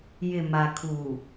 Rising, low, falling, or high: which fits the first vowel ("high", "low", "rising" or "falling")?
low